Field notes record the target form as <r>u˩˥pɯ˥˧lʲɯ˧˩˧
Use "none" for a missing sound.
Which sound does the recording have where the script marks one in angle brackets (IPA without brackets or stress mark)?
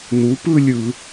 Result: n